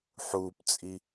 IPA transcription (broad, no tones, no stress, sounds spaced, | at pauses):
ħ uː p t͡sʼ i